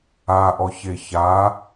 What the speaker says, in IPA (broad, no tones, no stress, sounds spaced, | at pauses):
a ʔ ɔ ç e ç a